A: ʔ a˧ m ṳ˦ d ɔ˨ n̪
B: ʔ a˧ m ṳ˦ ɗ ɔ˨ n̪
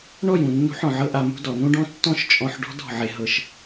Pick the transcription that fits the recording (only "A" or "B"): A